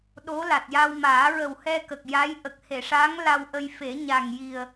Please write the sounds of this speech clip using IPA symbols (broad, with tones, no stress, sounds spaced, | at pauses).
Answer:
ɗ o˧˥ l a˨˩ t̚ j a˧ w m aː˨˩˦ ɹ ə˨˩ w h ɛ˧ k ə˨˩ k̚ j a˧˥ j ʔ ə˨˩ k̚ h e˨˩˨ ʂ a˧˥ ŋ l a˧ w ʔ ə˧ j f e˨˩˦ ɲ a˨˩ ŋ j i˨˩ ə̯